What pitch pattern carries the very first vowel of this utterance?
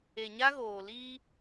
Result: low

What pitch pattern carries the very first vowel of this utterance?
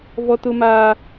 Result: high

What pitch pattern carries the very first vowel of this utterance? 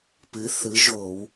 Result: rising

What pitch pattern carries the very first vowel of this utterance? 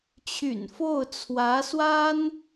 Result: low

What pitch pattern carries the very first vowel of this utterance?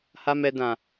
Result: high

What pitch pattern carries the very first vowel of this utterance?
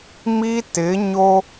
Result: high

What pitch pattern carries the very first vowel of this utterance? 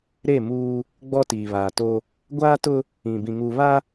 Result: falling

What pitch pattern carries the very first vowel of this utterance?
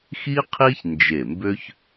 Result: high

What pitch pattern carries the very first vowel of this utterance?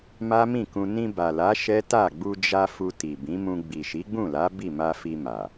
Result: high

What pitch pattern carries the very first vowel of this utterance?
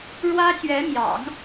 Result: high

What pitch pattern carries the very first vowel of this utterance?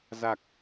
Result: low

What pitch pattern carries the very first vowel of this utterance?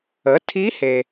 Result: rising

